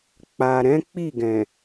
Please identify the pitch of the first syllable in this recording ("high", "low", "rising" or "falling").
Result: low